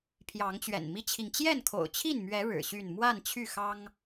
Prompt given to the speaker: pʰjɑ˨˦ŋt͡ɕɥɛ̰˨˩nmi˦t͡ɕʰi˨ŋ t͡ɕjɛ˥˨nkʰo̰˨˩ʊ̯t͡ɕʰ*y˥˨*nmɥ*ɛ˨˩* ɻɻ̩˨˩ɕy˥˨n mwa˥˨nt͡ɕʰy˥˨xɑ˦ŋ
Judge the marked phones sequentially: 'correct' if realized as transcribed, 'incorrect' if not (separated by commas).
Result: incorrect, incorrect